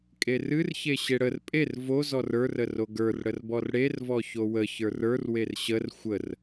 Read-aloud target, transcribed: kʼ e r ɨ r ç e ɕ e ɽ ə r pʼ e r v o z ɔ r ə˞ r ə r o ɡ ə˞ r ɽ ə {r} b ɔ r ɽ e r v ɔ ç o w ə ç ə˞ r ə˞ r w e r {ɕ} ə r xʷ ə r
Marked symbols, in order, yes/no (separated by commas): yes, yes